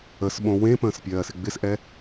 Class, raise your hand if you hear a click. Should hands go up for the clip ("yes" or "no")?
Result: no